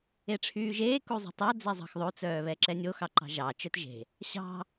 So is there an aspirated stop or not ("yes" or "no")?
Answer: yes